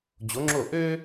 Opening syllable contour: rising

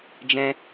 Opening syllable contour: high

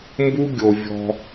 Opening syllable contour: high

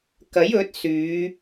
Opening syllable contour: rising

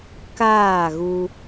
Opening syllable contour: falling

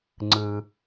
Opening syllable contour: high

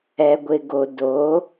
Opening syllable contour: low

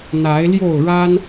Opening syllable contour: rising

